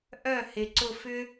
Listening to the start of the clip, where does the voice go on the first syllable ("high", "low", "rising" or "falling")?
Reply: falling